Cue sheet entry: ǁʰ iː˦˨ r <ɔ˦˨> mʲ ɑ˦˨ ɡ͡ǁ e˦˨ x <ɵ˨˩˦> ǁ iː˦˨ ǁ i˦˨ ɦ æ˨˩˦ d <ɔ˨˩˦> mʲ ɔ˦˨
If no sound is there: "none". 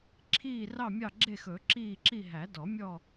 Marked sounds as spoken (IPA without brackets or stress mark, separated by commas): ɑ˦˨, ɵ˨˩˦, ɔ˨˩˦